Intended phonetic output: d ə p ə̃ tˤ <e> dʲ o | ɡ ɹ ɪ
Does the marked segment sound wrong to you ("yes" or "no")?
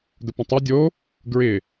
yes